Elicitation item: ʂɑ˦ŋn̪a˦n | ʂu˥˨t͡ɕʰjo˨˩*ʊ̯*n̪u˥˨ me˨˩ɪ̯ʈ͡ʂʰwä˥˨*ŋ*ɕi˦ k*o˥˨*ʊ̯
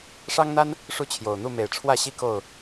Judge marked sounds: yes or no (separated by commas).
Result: yes, no, yes